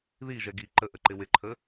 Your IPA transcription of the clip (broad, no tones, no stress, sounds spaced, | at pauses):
ð i ʒ ɛ ɡ i ǃ ə ʔ ə ǃ ɪ w ɪ ǃʰ ə